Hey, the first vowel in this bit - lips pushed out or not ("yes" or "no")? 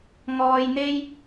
yes